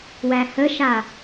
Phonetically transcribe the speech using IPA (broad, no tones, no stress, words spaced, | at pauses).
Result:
wæhəʃa